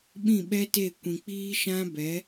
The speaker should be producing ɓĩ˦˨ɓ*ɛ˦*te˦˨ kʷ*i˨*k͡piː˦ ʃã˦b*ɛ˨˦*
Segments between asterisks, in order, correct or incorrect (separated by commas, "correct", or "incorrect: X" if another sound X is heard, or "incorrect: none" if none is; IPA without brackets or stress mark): correct, incorrect: ĩ˨, correct